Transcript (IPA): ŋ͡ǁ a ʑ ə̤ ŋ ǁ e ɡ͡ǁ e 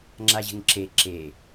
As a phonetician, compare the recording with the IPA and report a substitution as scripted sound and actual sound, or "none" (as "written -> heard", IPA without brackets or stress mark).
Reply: ɡ͡ǁ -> ǁ